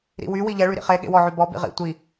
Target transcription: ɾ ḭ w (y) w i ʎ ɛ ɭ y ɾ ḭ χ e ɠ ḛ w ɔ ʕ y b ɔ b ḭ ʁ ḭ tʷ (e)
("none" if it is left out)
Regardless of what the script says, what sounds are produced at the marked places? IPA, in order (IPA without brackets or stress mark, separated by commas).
y, i